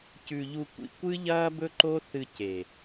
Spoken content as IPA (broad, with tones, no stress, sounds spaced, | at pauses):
c ʉ˧ ʎ u˧ kʷ ḭ˧ kʷ ɨ˦ ʎ ɐː˦ b ɵ˦ ǃ o˦ θ ɨ˧ c e˨